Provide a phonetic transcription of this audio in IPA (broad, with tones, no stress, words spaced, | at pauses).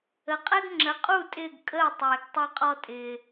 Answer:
ə˩˥qʼɛ˥ɡ ŋ͡ǁə˩˥qʼu˥˩ tʼɪː˥˩ɡkʼəː˥˩ tˤɪː˩ɡ tˤɛ˧qʼɔ˧tʼɪː˩